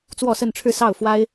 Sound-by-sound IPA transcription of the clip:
t͡s w ɔ˥˧ s ə˥˧ n ʈ͡ʂʰ ɻ̩˥˧ s ɑ˥˩ ʊ̯ f w a˥ ɪ̯

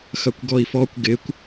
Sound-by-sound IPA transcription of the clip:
x ɐ kʷ ɡ ɔ i̯ f ɔ kʷ ɡ ɪ kʷ

